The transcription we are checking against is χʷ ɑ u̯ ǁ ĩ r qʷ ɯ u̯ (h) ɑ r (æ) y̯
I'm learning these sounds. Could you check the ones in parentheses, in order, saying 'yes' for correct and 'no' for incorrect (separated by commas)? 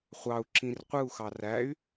no, yes